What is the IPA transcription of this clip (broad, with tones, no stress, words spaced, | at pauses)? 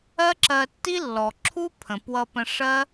ɜ˥ǁɜ˧tːi˥ lːɔ˩ǁʰu˥pʰə̃˩ pwʌ˧ pə̃˧ʂɜ˥